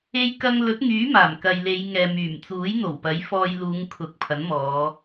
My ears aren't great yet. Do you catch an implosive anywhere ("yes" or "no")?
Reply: no